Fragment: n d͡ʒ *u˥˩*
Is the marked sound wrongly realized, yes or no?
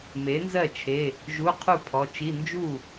no